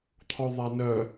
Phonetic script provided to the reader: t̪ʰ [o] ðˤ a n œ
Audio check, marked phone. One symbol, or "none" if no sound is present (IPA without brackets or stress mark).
ɔ